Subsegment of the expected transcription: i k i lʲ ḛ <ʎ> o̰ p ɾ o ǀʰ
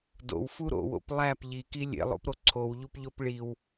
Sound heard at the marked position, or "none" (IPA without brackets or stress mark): lˠ